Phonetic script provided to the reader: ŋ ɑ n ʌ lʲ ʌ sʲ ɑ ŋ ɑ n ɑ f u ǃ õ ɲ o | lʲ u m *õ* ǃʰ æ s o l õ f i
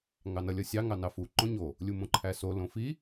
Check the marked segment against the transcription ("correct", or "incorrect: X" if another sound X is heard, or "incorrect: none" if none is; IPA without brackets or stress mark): correct